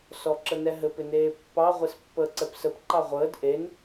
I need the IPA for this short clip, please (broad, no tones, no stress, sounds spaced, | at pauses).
s ɔ ǁ ə n ɛ ɦ ɘ p ɪ n eː pː ɑ ʁʷ e s pː əː ǀ ɛ p s ə p ǃ ɑ ʁʷ əː d ʔ e n